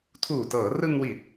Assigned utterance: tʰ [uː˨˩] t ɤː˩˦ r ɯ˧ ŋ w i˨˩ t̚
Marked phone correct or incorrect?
correct